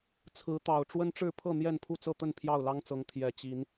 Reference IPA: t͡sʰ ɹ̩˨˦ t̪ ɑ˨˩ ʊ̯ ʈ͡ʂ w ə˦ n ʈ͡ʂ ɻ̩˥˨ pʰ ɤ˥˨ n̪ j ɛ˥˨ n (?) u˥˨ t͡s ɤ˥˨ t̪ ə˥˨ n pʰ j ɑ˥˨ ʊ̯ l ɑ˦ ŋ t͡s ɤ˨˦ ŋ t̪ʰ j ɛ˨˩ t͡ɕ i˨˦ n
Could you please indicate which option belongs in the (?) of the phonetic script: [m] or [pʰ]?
pʰ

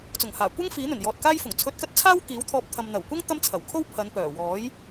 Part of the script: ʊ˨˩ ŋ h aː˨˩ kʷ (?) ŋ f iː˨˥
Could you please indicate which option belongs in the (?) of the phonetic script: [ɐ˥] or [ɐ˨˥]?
ɐ˥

